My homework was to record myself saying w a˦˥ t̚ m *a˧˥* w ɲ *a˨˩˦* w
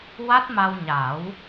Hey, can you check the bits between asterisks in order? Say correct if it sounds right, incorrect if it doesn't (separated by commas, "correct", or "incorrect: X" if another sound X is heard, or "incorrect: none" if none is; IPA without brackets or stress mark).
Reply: incorrect: a˧, correct